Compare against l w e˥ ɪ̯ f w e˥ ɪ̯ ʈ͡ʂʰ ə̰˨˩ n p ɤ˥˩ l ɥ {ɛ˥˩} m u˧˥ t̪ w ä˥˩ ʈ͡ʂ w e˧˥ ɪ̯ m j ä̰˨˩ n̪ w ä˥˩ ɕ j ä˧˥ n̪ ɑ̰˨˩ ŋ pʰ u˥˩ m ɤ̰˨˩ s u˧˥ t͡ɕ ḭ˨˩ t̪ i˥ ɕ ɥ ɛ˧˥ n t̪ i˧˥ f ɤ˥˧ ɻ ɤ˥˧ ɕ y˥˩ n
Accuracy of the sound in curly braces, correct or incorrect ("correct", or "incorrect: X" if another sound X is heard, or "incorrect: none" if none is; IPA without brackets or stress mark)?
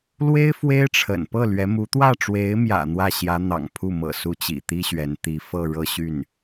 incorrect: ɛ˧˥